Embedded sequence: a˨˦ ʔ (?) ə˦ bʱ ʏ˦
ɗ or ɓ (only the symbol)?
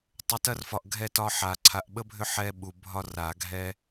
ɓ